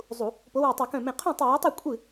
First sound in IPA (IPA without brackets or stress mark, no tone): zˤ